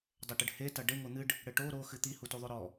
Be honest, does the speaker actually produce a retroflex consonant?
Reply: yes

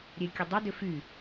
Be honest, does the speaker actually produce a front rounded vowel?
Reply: yes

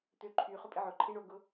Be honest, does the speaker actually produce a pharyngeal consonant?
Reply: yes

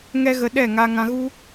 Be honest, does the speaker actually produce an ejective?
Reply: no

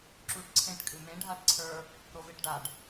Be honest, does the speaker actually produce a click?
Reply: yes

